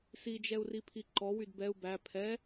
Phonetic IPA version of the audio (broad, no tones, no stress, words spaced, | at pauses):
sid͡ʒɛu̯ripʰi ǃɔwyd bɛu̯ bæ pʰɛ